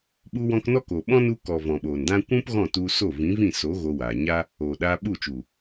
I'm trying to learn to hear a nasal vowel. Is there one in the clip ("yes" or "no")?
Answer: yes